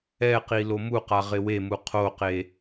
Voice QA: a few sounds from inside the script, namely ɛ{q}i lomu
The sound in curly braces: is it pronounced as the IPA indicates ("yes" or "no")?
yes